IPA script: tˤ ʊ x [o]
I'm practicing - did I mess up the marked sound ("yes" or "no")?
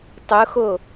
no